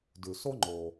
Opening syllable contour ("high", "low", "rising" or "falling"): low